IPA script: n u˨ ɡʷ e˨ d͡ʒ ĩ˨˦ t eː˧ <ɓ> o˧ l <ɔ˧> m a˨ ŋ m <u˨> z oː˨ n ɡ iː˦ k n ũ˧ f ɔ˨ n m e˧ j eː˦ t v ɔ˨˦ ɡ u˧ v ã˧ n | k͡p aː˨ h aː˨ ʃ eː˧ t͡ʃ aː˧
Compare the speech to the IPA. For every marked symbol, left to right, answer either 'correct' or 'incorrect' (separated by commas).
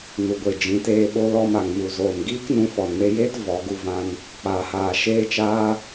correct, correct, correct